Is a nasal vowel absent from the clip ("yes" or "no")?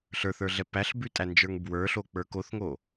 yes